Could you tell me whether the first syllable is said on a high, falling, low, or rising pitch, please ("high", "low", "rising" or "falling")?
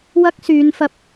high